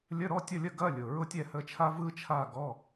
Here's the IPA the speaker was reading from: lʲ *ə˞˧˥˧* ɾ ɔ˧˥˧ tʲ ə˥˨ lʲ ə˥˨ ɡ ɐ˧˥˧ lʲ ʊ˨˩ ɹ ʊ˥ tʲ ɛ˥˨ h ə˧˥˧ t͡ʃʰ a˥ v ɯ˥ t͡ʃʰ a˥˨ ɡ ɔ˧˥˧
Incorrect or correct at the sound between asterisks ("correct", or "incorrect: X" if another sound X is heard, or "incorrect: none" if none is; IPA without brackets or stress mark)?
incorrect: ə˧˥˧